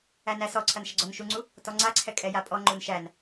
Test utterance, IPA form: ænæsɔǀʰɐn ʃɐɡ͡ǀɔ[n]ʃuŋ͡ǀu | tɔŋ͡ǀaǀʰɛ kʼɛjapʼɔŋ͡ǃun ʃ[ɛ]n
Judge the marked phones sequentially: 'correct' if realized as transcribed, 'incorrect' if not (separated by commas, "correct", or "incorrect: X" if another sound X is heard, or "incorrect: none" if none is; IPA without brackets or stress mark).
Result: correct, incorrect: æ